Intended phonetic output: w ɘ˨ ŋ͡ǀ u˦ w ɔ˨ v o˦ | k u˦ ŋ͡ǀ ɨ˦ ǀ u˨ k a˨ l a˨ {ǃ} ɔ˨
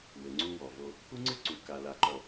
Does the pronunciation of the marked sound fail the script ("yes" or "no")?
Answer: no